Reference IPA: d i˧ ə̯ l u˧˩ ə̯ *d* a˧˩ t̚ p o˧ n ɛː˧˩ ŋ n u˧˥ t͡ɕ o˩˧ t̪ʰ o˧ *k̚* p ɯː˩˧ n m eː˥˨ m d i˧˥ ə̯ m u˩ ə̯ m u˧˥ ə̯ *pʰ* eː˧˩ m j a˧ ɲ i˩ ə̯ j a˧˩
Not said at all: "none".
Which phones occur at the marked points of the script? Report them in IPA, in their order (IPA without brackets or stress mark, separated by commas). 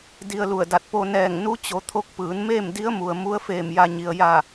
d, k̚, f